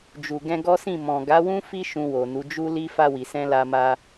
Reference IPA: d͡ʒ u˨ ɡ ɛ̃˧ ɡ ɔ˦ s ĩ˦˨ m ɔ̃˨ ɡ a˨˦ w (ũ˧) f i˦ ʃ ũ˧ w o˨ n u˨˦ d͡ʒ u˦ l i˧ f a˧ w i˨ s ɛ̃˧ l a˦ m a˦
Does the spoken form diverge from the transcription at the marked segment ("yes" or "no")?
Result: yes